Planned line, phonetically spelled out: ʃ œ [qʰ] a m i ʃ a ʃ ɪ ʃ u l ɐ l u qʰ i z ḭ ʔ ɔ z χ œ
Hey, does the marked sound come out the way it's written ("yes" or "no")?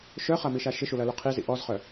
no